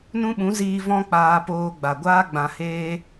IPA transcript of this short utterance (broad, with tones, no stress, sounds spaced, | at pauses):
n ũ˦ ɓ ũ˨˦ z iː˧ v ɔ̃˦ k͡p aː˧ p oː˧ ɡ͡b a˨ ɡʷ aː˦ ɡ͡b ã˧ h eː˦